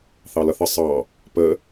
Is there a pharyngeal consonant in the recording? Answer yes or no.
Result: no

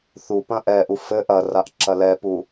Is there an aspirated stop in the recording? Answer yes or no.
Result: no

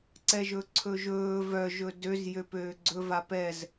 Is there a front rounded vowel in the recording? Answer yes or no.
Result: yes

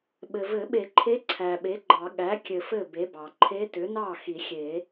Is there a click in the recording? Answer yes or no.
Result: yes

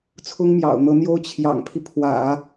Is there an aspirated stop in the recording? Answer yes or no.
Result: yes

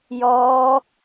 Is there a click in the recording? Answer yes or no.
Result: no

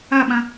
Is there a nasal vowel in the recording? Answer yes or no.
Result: yes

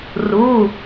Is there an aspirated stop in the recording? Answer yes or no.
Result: no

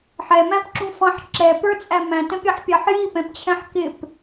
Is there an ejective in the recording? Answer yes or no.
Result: yes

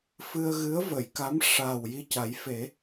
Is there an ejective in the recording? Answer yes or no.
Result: no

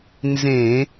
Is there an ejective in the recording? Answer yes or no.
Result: no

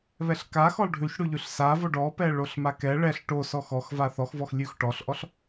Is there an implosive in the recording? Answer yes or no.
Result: no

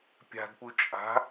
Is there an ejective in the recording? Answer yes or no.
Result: yes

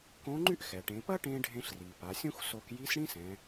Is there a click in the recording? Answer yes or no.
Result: yes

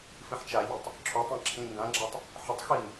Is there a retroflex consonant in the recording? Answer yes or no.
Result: no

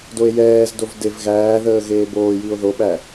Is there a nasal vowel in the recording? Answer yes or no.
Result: no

